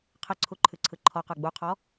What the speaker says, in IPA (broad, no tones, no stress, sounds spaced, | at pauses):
qʰ ə ǀʰ u ǃʰ ɨ ǀʰ ɯ ǃʰ ɔ q ə˞ ɡ͡b u qʰ ɔ